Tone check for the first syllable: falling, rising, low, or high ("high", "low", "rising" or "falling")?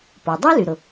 low